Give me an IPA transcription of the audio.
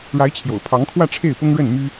ɻ a˧˥ ɪ̯ t͡ɕʰ j o̰˨˩ ʊ̯ pʰ ɑ˧˥ ŋ kʰ w ä˥˧ ʈ͡ʂʰ e˥˩ ɪ̯ p ʊ˥ ŋ ɻ ə˥˩ n m y˥

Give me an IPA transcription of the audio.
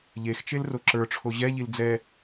ʎ e x t͡ʃ e l r o ǁ ə˞ ʈ͡ʂʰ o ʑ ɛ ʎ i l d͡z ɛ

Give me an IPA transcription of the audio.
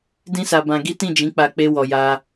d ĩ˦ s a˧ b ã˧ ɡ i˦ t ĩ˦˨ d͡ʒ ĩ˨˦ k͡p a˧ k͡p e˧ w ɔ˨ j a˧

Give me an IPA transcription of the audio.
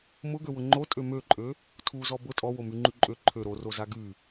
m ʊ ɡ ø w ʊ ŋ͡ǃ o tʼ ø m ø ǃʼ ø | tʰ u z ɔ b ʊ tʼ ɔ w o m y ŋ͡ǃ y ǃʼ ø ǃʰ ø ɾ o r o z a ɡ y

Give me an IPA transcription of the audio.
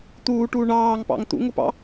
t̪ uː ʈ uː ɳ ɑː ŋ p ɑ̰ ŋ t̪ ṵ ŋ ʊ p ɑ̰

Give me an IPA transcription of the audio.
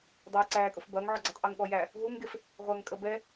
dˤ ɐː j ǀ æː kʼ ʊ f b ɐː ŋ ʕ ɔ ɡ͡ǀ u tˤ ʔ e ŋ ɠ ɔ j æ | ɦ u ŋ ɡ e f | ʁʷ ɐː ŋ kʼ ə b ɛ

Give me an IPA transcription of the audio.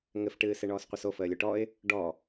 ŋ ɘ f ʈ ɨː s e ɳ ɔː s qʷ ɛ s o f əː lʲ o ʈ ɔ ɪ̯ | ɖ ɔ

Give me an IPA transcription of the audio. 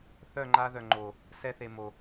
θ œ˦˨ ŋ͡ǃ a˧ ð œ˨ ŋ͡ǃ o˨ | s ɛ˧ θ e˨ m o˨

